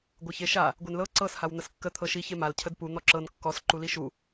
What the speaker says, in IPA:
ɡʷ ə ç e ʃ a | ɡʷ e n l ɤ ǀ ɤ s h a w n̪ ə s kː ə t̪ʰ ɤ ʃ i ç e m a l cʰ ə d p u n̪ ɔ ǁ ɤ n kː ɔ s ǃ u l i ʃ u

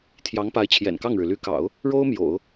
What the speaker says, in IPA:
t̪ʰ j ɑ˧˥ ŋ p a˧˥ ɪ̯ t͡ɕʰ j ɛ̰˨˩ n k ɑ˥˩ ŋ ɻ ɻ̩˩ l y˧˥ k ɑ̰˨˩˦ ʊ̯ | ɻ o˥ ʊ̯ m j o̰˨˩˦ ʊ̯

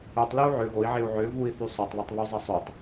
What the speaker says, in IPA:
œ tˤ l e u̯ ʕ ø ɣ o i̯ ʕ e u̯ ʕ ø v u i̯ θ y sˤ o tˤ β ɐ tˤ β u zˤ ɐ sˤ u tˤ

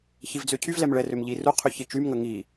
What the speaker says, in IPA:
ç i v d͡z ø cʰ y v l ɛ m ɭ ɛ r ø m ʎ i r u qʰ y ç i t͡ʃ y m ŋ ə ŋ i

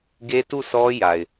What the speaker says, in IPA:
ɡ e˦ t u˦˨ s ɔ˦ j a˨ ɪ̯

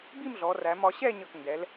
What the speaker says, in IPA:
b i˥˧ m ɮ ɔ˩˧ r æ˩˧ m ɒ˩˧ ɕ ɛ˥˧ ɲ ʌ˧˩ k n d ɛ˩˧ l

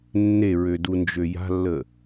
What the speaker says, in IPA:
nː e ɹ ø d u n d͡ʒ ø j a̤ lː ə

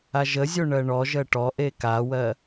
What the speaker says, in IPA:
a ʒ ə zʲ o ɳ ɜ ɳ ɔ ʒ ɜ ʈ ɔ ʔ e k a w ɜ

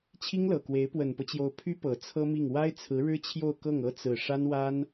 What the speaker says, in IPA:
t͡ɕʰ i˥ ŋ l ɤ˨˩ k w e˧˥ ɪ̯ p w ə˨˩ n p ɤ˦ t͡ɕ j o˧˥ ʊ̯ pʰ y˥ p ɤ˨˩ t͡sʰ ɤ˥ m i˥˩ ŋ w a˥ ɪ̯ t͡sʰ ɹ̩˧˥ ɻ ɻ̩˥ t͡ɕʰ j o˥˧ ʊ̯ k ɤ˥˩ ŋ ɤ˥ t͡s ɹ̩˥˩ ʂ a˥ n w a˥ n

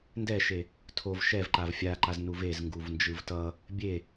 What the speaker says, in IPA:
n d ɛ ʃ e | tʰ o v ʃ ɛ v ǃ a v fʲ a ǃ a z n u v e z ŋ ɡ u v n d͡ʒ ɯ v t ʌ | bʲ e

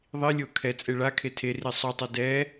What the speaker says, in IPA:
ðˤ i lʲ o kʰ ɛ t͡sʼ e ɭ a kʰ e tʰ e r i sˤ o tˤ o d ɛ

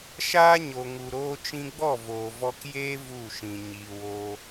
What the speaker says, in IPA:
ʃ aː˦ ɲ o˨ ŋ u˨ ɾ oː˧ t͡ʃ ĩ˧ ɡ͡b ɔ˦˨ v oː˨ v ɔ˧ k j eː˦ v u˦˨ ʃ ĩ˨ ɲ iː˨ w oː˧

